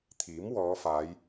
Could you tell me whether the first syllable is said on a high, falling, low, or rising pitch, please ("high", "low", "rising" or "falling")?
rising